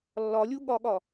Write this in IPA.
lː ɒ lʲ u ɠ ɒ ɠ ɒ

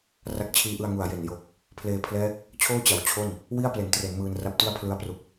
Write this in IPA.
r a˦˥ k̚ t͡ɕʰ iː˦˥ ʔ ɯ˧ a̯ ŋ u˨˩ a̯ j e˨˩ n j o˨˩ k̚ | pʰ l eː˧ pʰ l ɛː˦˥ k̚ | t͡ɕʰ oː˥˩ t͡ɕ a˩˦ w t͡ɕʰ o˥˩ n | w i˥˩ a̯ p l e˩˦ n t r e˩˦ n m ɯː˧ n r a˦˥ p̚ t i˥˩ a̯ pʰ l ɯ˧ a̯ p r u˨˩ k̚

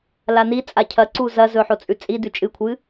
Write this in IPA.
l a n i t͡sʼ a cʰ ɐ ǀ u z ɐ z ɵ ħ o t͡sʼ ʉ t͡sʼ i d ʉ t͡ʃʼ ɨ kʷʰ ɨ

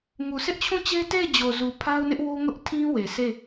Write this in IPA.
ŋ u˨ sʰ ɪ˦ ʔ t͡ɕʰ ũ˦˨ t͡ɕ e˦ t e˦˨ ɪ̯ d͡ʑ o˨ z u˨ pʰ a˦ ʊ̯ n ɪ˦ ʔ w o˦ ŋ ʊ˦ ʔ tʰ ĩ˦ w e˨ s e˦˨

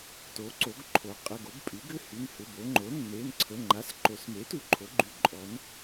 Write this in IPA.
t o˩˧ ǀ o˩˧ ɡ ǃʰ o˩˥ qʼ ə˩˧˩ ɡ o˩˥ b pʼ y˩˥ ɡ ʏ˩˧˩ h y˩˧˩ n h ʏ˩˧˩ b o˩˧ ŋ͡ǃ o˩˥ nː e˩˧˩ n ǀʰ ə˩˧˩ ŋ͡ǃ a˩˧˩ s ǃ o˩˧ s m e˩˥ t u˩˧ ǃʰ o˩˧ ɡ͡ǃ y˩˥ ǃʼ ɔ˩˧ n

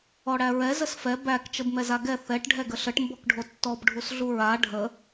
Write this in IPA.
ɔ ɽ æ ɹ ɛ z ə s f ɛ b æ k t͡ʃ ə b m ɛ z a ɡ ɛ θ ɛ ʈ ɖʱ ɛ ɡ ə ɬ ə ʈ m b ɔ k ɖʱ o tː ɔ b ɖʱ u s ɮ u ɹ a ɖʱ ə

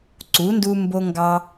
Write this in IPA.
ǀ u˨˥ n d u˦ m b o˦ ŋ ɡ ɑ˦

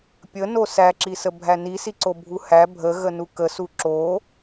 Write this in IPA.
pʲ ə n o s æ ǁ i s ə bʱ æ n i s i ǀ o bʱ u h æ bʱ ə ɣ ə n u k ə s u ǁ o

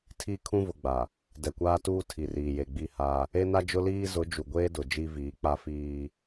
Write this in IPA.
tʰ i˦ kʰ ũ˦ v ʊ˨ ɡ͡b a˨ | d ɛ˨ kʷ aː˦ t uː˦ tʰ i˨ r iː˨ j e˨ ɡ͡b i˦˨ h aː˦ | e˦ n a˦ d͡ʒ ʊ˦ l iː˦ z ʊ˨˦ d͡ʒ u˨ ɡʷ eː˦ d ʊ˨ d͡ʒ i˦ v iː˨˦ k͡p a˦ f iː˦

